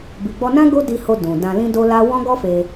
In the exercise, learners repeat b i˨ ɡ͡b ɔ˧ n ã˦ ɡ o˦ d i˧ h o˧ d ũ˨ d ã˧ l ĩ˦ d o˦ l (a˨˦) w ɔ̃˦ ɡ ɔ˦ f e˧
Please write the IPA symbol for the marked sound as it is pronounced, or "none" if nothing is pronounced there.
a˦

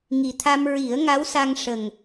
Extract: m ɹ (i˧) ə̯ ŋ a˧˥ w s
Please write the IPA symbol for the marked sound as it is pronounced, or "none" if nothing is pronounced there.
i˨˩˦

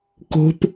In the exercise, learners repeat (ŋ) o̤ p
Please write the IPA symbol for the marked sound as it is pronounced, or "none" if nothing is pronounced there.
k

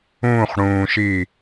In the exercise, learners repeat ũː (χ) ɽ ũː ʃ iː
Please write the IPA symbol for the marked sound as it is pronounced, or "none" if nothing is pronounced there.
χ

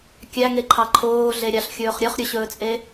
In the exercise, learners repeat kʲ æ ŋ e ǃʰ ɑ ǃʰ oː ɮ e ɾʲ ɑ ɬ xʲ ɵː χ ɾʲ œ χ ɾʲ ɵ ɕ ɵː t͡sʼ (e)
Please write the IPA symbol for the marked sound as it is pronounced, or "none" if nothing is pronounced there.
e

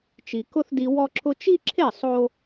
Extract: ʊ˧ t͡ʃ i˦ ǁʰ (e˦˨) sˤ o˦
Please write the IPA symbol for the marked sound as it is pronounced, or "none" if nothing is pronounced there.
e˦˨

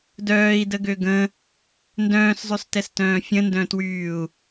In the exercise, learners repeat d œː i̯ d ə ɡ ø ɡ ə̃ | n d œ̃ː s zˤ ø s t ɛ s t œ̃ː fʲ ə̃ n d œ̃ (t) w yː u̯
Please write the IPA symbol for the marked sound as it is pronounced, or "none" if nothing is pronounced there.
t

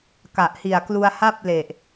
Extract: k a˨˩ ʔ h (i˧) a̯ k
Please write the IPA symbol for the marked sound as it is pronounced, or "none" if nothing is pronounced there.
i˨˩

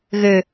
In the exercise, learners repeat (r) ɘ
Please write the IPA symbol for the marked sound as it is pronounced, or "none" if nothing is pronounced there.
ɣ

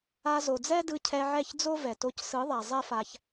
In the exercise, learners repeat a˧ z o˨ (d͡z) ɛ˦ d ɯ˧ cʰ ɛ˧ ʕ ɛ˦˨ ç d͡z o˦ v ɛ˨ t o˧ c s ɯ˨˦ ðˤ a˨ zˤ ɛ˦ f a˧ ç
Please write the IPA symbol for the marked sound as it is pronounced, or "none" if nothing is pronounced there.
d͡z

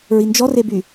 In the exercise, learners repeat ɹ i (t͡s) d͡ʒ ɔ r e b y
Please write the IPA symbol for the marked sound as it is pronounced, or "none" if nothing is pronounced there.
n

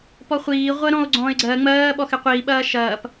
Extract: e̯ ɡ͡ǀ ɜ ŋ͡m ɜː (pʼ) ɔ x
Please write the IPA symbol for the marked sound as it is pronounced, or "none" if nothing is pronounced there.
ɓ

